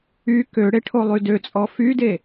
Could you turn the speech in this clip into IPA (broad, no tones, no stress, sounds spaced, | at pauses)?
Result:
y k ø ɽ e ʈʰ o lˠ y d ø t͡sʼ ɔ f y d e